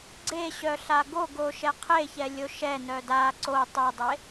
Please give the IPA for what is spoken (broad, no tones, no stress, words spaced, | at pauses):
ɡ͡ǀeɕœ ɬaɡoɡo ʃɛqʰeçɛ lʲoʃɛnœ da ǀo tˤɛdˤe